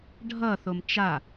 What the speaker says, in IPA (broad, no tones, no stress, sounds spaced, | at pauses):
ɖʱ ʌ θ o m t͡ʃ a